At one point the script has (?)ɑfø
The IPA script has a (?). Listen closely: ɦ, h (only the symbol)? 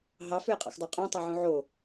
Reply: ɦ